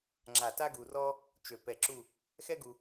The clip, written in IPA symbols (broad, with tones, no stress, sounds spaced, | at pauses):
ŋ͡ǁ a˧˩ t a˥ ɡ u˧ r ɔ˥ | t͡ʃ ø˧˩ p ɛ˧ ǁ u˥˧ | x ɛ˥ ɡ u˧